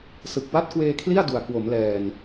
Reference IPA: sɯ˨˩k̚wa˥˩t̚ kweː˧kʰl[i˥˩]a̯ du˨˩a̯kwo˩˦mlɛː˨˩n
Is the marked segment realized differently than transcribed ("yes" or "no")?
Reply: no